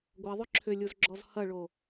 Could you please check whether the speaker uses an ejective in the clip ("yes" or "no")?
no